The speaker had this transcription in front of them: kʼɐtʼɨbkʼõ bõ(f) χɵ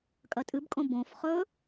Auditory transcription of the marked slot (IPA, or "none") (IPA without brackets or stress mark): f